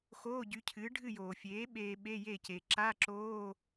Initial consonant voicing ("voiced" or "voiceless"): voiceless